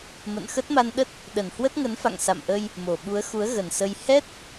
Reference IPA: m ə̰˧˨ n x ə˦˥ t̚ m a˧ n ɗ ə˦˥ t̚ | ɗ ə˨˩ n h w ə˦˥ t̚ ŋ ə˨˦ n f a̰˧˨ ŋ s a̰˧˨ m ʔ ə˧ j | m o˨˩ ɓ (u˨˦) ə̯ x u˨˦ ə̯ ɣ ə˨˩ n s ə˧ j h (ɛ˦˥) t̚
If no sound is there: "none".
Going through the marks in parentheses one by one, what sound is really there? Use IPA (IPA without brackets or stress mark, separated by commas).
u˨˦, ɛ˦˥